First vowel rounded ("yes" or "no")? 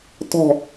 yes